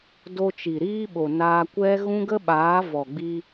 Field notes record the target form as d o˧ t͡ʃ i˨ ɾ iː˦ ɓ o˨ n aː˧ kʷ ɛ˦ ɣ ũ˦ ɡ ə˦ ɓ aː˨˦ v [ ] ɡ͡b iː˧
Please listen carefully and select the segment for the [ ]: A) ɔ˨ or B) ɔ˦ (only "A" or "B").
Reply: A